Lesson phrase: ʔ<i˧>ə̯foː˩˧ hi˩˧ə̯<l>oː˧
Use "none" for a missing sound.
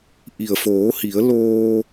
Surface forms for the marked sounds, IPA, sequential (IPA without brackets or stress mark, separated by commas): i˩, l